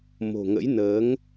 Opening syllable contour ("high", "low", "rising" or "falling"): low